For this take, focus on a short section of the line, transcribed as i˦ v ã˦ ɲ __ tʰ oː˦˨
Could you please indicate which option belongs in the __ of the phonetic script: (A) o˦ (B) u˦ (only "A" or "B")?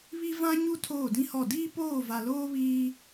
B